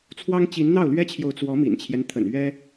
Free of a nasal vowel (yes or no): yes